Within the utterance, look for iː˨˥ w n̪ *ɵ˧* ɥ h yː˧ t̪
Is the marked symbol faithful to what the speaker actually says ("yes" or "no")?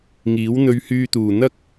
yes